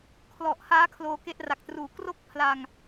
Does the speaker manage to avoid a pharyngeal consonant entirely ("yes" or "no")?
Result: yes